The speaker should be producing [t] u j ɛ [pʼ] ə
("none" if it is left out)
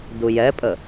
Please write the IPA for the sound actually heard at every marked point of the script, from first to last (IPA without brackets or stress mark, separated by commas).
d, pʼ